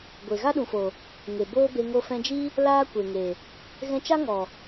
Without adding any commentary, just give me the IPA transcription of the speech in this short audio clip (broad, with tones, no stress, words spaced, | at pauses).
ɡʷe˨ ɣa˦ɗũ˨fo˨ | ŋe˨boː˦be˧ ŋo˧fɛ̃˧d͡ʒi˦ | laː˦kʷe˨ŋe˨ | ɣɛ̃˧t͡ʃa˦ŋɔ˨